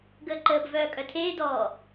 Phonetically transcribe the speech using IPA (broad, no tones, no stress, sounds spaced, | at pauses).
ɡ əː ǃ əː b v œː kʼ œ tʰ eː d ɔː